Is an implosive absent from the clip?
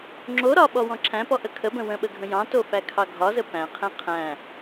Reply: no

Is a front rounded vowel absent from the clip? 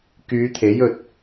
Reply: no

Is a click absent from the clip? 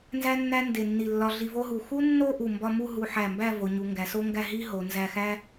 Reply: yes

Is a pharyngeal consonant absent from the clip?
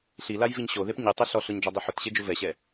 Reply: no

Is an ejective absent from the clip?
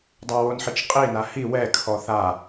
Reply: no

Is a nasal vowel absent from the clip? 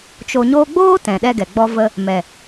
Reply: no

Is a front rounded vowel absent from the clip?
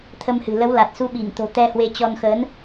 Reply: yes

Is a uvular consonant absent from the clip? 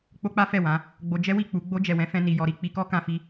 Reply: yes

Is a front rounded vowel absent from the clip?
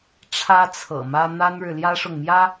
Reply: yes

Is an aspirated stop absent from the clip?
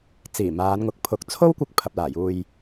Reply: no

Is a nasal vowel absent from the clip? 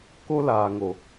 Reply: yes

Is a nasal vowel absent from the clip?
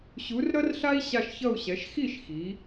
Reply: yes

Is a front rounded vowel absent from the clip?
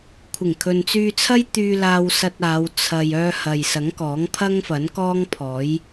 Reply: no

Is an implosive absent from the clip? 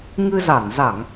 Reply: yes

